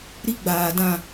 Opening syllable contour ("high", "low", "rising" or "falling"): high